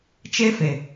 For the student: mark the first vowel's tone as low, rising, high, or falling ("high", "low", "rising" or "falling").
high